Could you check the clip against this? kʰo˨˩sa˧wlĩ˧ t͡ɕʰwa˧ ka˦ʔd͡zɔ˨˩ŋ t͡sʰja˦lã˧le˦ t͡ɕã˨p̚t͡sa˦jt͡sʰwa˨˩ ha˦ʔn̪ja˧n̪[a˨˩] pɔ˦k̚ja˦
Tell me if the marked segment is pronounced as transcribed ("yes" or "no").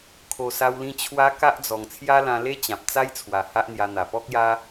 yes